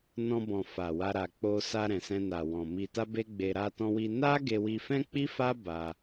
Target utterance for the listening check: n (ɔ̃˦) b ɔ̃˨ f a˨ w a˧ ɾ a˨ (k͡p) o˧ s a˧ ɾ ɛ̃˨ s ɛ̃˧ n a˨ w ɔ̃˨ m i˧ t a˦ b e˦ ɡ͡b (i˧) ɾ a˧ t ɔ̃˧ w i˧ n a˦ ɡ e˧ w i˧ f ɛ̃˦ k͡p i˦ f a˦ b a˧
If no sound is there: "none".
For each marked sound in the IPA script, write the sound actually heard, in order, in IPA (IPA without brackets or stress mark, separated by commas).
ɔ̃˧, k͡p, e˧